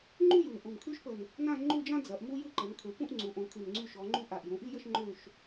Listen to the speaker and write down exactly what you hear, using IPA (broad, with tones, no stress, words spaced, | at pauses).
ŋ͡ǃu˥ ju˨˩n ʔu˨˩mkʰy˥ʃpə˨˩n | nã˥˧ŋ͡ǃu˥˧d͡ʒã˥ d͡zɐ˩˧ʔmu˥jɨ˥˧ ǃə˩˧nkʰø˩˧pũ˥˧ʔ ŋ͡ǀu˩˧ʔõ˩˧kʰy˨˩n ŋ͡ǀy˥˧ʃɔ˩˧ŋ͡ǃu˥ ʔa˨˩ʔjũ˩˧ʔi˥˧jə˥˧ʃ ŋ͡ǃø˥˧ʃ